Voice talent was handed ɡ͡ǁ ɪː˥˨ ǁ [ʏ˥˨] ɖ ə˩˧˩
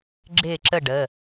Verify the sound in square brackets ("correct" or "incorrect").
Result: incorrect